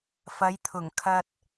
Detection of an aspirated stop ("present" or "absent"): present